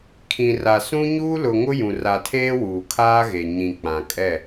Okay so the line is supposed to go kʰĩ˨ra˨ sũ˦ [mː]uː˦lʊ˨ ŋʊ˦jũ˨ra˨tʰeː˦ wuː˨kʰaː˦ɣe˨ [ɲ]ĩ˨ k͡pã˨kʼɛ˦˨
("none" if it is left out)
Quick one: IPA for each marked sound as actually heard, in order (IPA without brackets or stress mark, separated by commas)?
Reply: ɲ, ɲ